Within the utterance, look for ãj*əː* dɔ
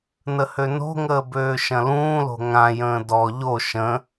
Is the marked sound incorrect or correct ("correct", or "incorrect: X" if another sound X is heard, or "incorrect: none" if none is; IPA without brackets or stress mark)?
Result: incorrect: ə̃ː